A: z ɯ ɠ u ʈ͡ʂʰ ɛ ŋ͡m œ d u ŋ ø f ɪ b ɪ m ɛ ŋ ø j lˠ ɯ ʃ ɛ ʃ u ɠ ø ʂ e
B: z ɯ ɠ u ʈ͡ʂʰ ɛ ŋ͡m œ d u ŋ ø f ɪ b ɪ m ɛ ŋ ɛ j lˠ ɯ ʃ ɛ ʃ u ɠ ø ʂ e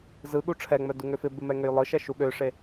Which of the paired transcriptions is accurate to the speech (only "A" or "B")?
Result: A